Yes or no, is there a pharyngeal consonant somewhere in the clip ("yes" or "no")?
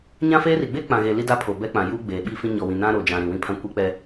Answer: no